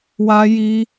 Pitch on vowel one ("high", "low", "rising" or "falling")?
high